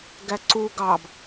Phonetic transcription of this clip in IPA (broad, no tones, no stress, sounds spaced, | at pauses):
ɡ æ ǀ u ɡ ɑ b